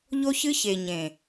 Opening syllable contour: high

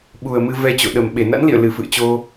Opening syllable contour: low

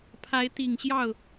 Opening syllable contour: rising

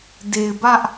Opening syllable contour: low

